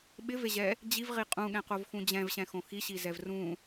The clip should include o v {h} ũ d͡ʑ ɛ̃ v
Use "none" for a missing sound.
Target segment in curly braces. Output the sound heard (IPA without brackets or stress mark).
x